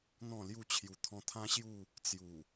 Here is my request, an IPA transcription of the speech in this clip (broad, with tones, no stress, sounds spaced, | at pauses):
n̪ ɔ̃˥˧ l j u˥˧ t͡ɕʰ j u˧ t̪ʰ ɔ̃˧ t̪ʰ ã˦ ɕ j u˥˧ | t͡s j u˨˩